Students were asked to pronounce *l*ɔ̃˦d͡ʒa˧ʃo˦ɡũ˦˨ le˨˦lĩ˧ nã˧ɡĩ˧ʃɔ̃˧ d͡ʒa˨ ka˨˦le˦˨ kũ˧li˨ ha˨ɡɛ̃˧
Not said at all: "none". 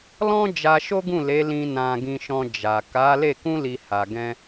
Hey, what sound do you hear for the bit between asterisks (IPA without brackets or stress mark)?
l